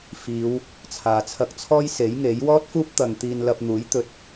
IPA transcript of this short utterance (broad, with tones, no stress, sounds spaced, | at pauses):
f iː˨˧ w | t͡sʰ aː˨ t͡sʰ ɐ˧ k̚ t͡sʰ ɔː˥ j s e˨˥ j ŋ e˨˥ j w ɔː˥ t̚ f uː˥ p̚ t̪ ɐ˨ ŋ t̪ iː˧ n l ɐ˧ p̚ n̪ uː˨˥ j t̪ ɵ˨ t̚